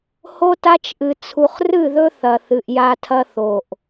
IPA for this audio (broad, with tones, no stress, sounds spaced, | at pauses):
h o˦ t a˦ t͡ʃ ʔ ɨ˨ t͡sʰ u˨ χ r ɨ˦˨ ð ɵ˦ θ ɐ˨ θ ɨ˨ ʔ j a˦ tʰ ɐ˦ θ o˨ ʔ